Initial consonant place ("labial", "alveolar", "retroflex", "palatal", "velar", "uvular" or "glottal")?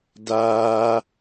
alveolar